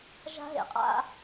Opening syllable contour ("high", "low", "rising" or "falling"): high